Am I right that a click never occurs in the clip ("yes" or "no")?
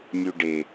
yes